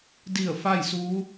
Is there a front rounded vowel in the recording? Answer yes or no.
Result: no